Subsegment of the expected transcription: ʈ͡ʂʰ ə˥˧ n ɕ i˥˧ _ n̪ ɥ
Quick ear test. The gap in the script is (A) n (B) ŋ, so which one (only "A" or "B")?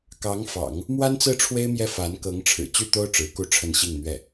B